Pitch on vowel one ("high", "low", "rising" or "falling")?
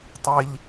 low